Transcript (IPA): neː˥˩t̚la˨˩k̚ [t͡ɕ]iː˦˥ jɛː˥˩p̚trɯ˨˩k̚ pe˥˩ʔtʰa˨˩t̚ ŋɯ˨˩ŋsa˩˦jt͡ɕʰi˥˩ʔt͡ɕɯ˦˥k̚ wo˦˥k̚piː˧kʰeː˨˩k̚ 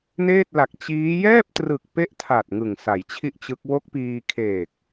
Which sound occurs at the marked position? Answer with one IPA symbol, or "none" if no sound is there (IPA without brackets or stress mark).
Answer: t͡ɕ